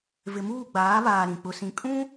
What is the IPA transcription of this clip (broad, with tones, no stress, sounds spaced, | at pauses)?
v ɪ˨ m uː˦˨ ɡ͡b aː˨˦ β aː˨ ɾ ĩ˨ k͡p ʊ˦ s ĩ˦ kʼ ũ˦